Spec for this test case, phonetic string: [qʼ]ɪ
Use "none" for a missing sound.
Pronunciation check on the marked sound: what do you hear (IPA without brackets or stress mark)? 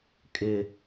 kʼ